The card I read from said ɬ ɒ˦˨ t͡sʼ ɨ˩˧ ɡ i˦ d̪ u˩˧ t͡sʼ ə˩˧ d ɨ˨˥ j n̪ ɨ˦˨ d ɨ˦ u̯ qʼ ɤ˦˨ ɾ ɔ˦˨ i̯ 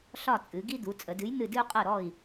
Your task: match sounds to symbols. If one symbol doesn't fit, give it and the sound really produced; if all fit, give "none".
none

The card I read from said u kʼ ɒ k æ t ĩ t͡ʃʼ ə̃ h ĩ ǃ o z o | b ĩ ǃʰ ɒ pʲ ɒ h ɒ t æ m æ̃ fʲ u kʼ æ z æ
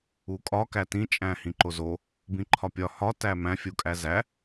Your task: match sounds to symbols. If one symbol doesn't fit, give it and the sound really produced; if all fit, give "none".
ə̃ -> æ̃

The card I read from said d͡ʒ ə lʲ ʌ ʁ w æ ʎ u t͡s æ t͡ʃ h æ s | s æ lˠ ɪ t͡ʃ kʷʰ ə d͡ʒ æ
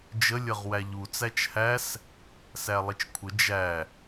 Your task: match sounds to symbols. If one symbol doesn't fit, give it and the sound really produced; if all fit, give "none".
none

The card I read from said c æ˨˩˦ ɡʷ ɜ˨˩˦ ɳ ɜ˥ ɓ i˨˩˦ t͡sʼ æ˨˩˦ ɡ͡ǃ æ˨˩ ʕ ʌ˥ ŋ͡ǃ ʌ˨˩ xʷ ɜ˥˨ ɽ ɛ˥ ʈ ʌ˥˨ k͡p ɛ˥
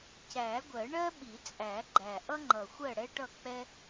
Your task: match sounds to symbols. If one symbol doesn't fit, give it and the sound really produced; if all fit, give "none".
ʕ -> ʔ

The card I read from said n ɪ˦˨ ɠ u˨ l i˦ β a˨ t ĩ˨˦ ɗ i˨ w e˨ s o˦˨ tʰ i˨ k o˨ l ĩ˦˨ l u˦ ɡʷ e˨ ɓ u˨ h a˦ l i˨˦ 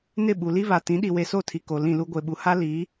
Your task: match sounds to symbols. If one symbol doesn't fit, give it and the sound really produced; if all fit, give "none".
ɠ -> ɓ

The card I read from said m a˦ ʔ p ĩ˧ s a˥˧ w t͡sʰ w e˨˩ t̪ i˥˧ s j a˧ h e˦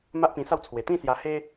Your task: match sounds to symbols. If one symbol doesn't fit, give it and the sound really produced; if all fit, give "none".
i˥˧ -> ĩ˥˧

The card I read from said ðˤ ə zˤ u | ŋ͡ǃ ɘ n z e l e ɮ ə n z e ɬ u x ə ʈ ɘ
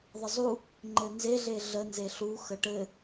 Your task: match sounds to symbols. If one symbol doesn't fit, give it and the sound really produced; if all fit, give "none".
l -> ɮ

